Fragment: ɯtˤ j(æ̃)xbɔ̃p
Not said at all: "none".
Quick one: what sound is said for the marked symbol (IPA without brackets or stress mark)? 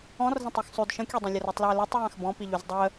ã